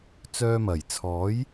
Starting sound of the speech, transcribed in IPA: t͡s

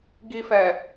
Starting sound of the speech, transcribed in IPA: ɡ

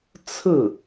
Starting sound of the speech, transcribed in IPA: t͡sʰ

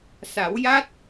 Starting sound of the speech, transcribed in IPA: s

